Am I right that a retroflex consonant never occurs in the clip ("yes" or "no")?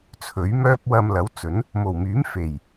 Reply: yes